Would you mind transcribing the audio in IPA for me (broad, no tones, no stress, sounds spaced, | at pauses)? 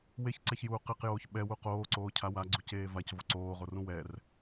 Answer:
w e ç ǀ ɛ ç j uː q e q j oː ç ɓ ɛ w u q oː ǀ oː cʰ a w a ɡ͡ǀ u c eː v a c v o ǀ oː ʁ o r ũ w ɛ r